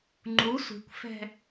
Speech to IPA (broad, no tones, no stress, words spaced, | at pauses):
ŋ͡ǃu sʷi̤kʷfɛ̤